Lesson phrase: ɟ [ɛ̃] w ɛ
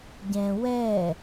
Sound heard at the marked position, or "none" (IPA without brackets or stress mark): ɛ̃